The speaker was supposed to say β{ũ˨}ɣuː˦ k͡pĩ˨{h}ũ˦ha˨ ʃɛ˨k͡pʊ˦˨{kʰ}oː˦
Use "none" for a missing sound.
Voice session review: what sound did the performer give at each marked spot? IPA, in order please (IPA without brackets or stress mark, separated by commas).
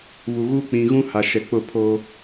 u˨, ɣ, pʰ